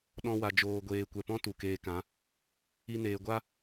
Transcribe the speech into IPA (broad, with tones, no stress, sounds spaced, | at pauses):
ɗ ɔ̃˧ w a˨ d͡ʒ oː˨ ɡʷ eː˨ kʷ ɛ˨ p ɔ̃˦ t u˨ k eː˧ k ã˨˦ | i˧ n eː˨ ɡʷ a˦